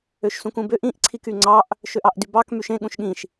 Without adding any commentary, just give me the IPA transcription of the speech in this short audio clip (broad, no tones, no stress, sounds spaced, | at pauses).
ø ʃ s ũ k ũ b ø ʔ ĩ ʔ ǀʰ i k y ŋ͡ǀ ɑ ʔ | ʃ ø ʔ ɑ ʔ d y b ɑ k m y ʃ ẽ ɠ ũ ʃ ɠ ĩ ʃ